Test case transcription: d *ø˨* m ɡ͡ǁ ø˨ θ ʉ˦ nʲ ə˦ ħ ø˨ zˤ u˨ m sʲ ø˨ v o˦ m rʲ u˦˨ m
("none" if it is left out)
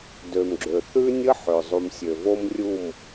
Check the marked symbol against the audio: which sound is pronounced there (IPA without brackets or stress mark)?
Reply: ø˨